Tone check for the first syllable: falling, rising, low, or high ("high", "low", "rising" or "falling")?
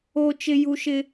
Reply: high